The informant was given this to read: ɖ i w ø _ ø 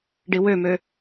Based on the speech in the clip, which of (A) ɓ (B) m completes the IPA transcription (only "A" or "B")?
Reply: B